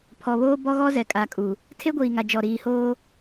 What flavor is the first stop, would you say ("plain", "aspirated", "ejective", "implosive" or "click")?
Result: aspirated